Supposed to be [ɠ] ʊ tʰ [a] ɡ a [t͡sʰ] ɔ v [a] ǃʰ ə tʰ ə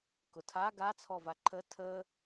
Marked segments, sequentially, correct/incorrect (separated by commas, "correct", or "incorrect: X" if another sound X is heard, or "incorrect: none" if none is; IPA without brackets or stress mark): incorrect: k, correct, correct, correct